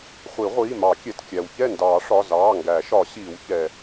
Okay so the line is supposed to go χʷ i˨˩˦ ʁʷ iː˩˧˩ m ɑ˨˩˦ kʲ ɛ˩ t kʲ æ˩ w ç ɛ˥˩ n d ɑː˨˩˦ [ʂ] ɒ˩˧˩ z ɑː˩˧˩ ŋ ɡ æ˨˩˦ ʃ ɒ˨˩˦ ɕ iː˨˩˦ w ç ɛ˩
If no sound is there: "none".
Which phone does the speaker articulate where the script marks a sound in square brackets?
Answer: ʂ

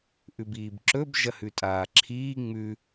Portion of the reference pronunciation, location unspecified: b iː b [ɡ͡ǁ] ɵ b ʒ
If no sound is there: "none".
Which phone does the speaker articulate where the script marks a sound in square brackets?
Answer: ǁ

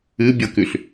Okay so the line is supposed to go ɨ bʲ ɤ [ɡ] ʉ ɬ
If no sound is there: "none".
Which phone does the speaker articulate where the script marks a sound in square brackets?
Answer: k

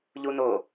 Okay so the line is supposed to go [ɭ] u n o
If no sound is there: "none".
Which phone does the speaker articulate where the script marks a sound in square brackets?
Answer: ʎ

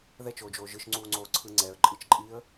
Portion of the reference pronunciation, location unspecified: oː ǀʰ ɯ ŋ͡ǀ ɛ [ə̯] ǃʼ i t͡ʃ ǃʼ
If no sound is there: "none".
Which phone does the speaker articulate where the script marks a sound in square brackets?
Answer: ə̯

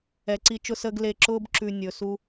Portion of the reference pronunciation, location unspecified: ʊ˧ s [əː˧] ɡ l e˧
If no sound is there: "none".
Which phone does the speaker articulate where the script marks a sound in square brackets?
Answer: əː˧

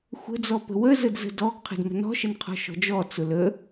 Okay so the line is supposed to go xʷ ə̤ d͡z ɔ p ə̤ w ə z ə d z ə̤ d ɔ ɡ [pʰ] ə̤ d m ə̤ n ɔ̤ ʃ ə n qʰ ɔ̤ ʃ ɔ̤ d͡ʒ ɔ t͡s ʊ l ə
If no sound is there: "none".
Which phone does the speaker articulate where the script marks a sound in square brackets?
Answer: qʰ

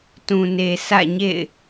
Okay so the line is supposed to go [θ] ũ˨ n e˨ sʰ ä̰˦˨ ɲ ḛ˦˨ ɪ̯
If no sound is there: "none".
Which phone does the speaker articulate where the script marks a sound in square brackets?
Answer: t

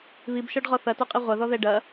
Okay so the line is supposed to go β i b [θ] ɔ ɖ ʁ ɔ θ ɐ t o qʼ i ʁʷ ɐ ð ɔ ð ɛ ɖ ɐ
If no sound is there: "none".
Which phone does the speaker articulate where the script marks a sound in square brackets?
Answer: ʃ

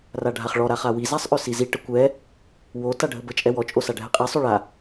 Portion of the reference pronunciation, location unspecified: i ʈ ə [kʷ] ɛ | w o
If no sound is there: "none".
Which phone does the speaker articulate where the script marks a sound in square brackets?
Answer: kʷ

